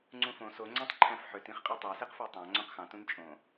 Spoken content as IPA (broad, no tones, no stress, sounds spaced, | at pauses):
ŋ͡ǀ ũ f õ s o ŋ͡ǀ æ̃ tˤ ǃʰ æ̃ f ħ ø t ĩ χ qʼ y tˤ ɑ s e q f æ tˤ ɑ̃ ŋ͡ǀ õ q x ɑ̃ t ũ n t͡ʃʼ õ